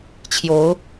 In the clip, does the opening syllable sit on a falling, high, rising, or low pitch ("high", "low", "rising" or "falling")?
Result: rising